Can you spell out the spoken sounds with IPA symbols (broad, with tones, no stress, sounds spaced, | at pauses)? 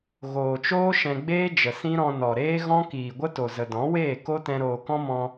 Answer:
ɣ oː˨ t͡ʃ oː˦ ʃ ɛ̃˧ ɡ͡b eː˦ d͡ʒ ə˨ s ĩ˦ ɾ ɔ̃˧ n ɔ˨ ɾ eː˦ ɣ ɔ̃˦ k iː˨ ɡʷ ə˦ t o˨ z ə˨ d ɔ̃˨˦ w eː˦˨ k o˦ t ɛ̃˧ ɾ oː˨ k ɔ̃˦ m ɔ̃˧